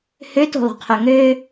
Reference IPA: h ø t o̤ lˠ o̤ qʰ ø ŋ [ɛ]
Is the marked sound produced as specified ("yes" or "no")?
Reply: no